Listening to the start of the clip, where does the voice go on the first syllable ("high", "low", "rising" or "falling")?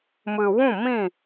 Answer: low